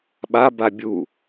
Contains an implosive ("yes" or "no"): yes